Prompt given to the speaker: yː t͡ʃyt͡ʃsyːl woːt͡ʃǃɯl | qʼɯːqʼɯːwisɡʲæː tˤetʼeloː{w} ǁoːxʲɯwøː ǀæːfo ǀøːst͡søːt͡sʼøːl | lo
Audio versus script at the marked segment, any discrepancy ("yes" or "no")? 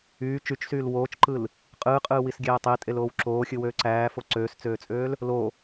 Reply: no